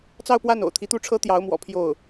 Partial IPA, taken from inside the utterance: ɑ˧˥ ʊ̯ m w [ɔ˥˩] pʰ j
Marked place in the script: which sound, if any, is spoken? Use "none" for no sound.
ɔ̰˨˩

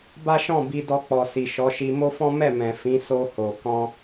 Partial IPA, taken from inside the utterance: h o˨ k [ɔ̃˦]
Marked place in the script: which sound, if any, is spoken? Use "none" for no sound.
ɔ̃˧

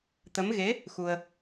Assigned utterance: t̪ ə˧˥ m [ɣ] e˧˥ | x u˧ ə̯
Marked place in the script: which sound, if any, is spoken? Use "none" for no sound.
ɣ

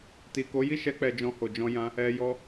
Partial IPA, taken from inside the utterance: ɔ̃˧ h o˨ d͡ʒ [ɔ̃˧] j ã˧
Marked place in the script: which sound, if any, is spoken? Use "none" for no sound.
ɔ̃˧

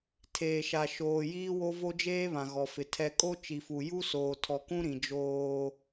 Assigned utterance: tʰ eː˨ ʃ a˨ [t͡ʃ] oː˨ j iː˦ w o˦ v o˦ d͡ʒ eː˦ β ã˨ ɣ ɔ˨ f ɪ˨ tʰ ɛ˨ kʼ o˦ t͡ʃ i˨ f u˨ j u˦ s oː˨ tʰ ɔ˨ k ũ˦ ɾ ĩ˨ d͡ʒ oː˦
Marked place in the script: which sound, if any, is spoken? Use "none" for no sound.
ʃ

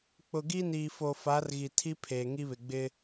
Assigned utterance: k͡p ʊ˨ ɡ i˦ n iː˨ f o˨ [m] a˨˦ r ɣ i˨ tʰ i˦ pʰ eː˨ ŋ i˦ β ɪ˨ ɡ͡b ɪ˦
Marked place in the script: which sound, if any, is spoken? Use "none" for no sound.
f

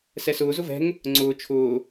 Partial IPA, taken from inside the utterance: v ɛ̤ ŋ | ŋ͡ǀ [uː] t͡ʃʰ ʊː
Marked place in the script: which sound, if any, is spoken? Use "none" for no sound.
ʊː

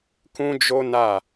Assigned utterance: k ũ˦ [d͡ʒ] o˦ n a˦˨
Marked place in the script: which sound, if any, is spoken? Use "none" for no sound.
d͡ʒ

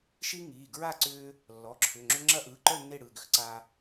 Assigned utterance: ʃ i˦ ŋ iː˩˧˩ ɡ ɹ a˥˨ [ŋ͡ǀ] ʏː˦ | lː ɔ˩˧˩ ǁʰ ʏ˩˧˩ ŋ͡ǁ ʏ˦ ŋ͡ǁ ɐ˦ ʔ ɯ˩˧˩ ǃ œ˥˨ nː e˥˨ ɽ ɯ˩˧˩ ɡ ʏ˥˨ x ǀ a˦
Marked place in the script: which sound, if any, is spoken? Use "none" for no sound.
ǀ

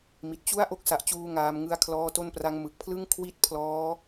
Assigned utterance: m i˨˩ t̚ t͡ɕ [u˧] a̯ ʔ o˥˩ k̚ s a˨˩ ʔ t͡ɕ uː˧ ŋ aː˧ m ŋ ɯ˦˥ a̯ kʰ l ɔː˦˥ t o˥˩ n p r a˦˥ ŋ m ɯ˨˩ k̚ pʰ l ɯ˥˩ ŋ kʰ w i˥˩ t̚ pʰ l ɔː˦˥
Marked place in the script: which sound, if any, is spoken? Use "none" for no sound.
u˥˩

